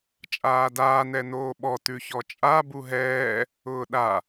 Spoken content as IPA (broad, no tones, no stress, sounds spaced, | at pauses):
t͡ʃʼ aː d aː n ɛ n oː ɓ ɔ t ʉ ç ɔ t͡ʃʼ a b u ɦ ɛː | ʊː ɗ a